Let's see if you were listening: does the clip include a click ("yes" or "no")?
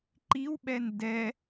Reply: yes